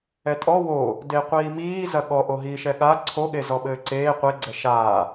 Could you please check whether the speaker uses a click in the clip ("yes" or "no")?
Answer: yes